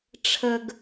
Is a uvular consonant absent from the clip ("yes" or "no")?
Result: yes